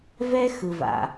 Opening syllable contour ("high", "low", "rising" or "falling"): high